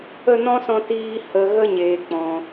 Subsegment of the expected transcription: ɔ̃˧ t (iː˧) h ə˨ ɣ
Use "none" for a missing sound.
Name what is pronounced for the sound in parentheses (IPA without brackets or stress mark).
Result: iː˧